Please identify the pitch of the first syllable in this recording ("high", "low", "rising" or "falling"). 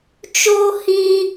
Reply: high